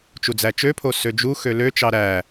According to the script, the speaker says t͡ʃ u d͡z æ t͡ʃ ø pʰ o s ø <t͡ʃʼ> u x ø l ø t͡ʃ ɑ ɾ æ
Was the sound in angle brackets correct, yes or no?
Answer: no